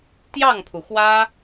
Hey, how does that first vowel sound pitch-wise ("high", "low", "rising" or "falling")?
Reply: falling